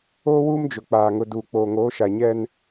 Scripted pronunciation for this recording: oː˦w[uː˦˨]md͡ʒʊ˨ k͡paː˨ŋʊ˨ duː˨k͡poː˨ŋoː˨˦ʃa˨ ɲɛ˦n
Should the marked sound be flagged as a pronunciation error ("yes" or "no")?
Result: yes